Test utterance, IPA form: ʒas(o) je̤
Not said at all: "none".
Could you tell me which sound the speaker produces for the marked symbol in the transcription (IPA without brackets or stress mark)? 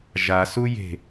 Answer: u